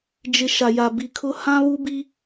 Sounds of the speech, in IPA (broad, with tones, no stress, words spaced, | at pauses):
d͡ʒɪ˨ ʃa˨ja˨bi˨kʰʊ˦ hã˦βu˦bi˦